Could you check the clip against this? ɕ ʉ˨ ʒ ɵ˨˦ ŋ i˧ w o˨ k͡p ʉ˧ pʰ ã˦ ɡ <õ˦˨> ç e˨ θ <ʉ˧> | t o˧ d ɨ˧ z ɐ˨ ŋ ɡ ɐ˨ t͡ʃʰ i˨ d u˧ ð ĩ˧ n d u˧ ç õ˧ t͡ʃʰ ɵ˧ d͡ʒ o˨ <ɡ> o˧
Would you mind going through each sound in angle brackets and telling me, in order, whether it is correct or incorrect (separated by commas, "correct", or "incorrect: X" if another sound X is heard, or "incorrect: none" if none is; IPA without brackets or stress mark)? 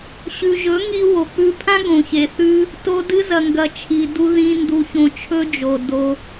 incorrect: õ˨, incorrect: ʉ˦, incorrect: d